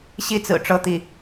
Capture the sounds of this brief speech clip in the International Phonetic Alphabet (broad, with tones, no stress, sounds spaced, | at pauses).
ɕ i˥˩ t͡s ɹ̩˨˩ ʈ͡ʂ ɤ˥˧ t̪ i˥˩